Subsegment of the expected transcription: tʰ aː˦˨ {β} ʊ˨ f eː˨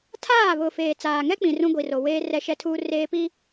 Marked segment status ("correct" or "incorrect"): correct